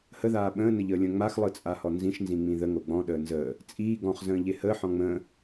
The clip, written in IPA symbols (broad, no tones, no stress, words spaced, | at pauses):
həðaː ɓə̃ːnəʎəːlʲə̃ː ŋ͡maxlˠɯt͡sʼahɔ nzĩʃnzĩŋ͡mĩ ðəŋo ɡ͡bɔ̃ɗəː nzəː | t͡sʼiː ɡɔ̃χzə̃ːʎe həːħɔ̃ ŋ͡mə̃ː